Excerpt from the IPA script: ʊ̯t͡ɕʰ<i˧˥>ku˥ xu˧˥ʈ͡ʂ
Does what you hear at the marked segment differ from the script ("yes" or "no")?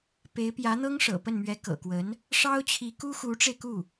no